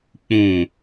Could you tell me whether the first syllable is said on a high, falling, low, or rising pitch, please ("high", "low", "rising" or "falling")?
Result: low